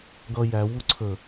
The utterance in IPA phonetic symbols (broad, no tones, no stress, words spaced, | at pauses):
ɡʌ jæ wuǀʰə